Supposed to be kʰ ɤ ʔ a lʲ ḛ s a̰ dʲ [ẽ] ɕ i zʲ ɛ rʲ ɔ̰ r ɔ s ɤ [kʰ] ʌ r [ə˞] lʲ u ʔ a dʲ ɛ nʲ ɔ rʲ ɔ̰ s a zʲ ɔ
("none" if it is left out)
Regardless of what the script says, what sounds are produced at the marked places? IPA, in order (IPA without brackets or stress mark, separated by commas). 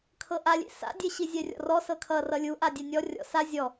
e, kʰ, ʌ